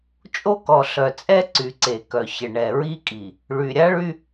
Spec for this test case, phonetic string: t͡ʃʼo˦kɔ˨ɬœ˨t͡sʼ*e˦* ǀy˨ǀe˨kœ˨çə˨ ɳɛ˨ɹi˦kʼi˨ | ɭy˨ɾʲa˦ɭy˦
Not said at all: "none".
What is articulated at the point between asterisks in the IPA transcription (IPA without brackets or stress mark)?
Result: ɛ˦